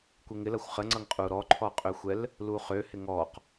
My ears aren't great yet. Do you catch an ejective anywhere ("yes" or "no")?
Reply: yes